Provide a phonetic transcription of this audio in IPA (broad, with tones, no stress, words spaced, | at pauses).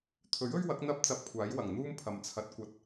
t̪ʰɵ˨˥ɥ ɵ˥ɥ wɐ˨˥k̚ n̪ɐ˥p̚ t͡sɐ˧p̚kʷʰaː˨˥jwɐ˨˩ŋn̪uː˥m pʰɐ˨mt͡sʰɐ˨˥t̚ kʷɐ˨t̚